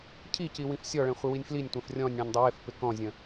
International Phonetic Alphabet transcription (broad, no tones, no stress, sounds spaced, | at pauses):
cʰ i c i w ĩ f sʲ ɔ ɭ ɛ̃ χʷ ɪ w i nʲ f l i nʲ tʷ ɛ̃ f rʲ ɔ̃ nʲ ɽ ɛ̃ nʲ dˤ ɪ w ɪ f p ɪ k ɔ̃ zʲ ə̃